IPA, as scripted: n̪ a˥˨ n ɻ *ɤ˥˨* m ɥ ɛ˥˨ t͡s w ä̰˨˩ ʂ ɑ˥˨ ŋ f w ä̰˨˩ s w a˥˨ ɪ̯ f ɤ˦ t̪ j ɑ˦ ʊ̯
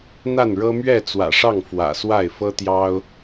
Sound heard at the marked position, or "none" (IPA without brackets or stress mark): ɤ˦